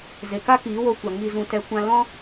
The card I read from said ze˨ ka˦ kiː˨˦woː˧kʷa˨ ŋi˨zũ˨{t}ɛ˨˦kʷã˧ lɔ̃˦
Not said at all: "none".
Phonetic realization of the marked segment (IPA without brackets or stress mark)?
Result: t